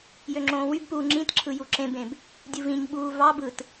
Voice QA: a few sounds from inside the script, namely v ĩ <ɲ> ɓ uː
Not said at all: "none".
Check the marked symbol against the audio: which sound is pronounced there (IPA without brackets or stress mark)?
ɲ